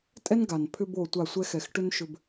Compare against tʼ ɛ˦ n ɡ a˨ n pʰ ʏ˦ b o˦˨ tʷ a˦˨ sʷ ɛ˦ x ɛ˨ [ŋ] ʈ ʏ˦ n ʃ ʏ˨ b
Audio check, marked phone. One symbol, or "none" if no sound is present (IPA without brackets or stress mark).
x